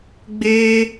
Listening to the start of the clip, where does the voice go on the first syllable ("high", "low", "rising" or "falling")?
high